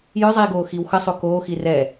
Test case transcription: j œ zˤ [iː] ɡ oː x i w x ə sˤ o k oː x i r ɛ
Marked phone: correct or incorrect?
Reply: correct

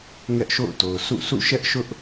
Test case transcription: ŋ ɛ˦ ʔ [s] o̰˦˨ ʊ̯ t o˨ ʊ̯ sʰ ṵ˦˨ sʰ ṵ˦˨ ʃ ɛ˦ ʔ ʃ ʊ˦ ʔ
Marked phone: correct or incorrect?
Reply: incorrect: ʃ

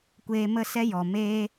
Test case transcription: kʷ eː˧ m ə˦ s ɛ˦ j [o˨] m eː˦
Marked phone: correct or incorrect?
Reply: incorrect: ɔ˨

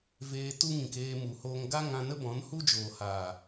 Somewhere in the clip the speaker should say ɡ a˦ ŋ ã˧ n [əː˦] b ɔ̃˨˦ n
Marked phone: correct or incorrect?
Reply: incorrect: ə˦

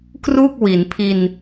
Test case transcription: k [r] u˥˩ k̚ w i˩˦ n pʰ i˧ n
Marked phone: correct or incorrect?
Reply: correct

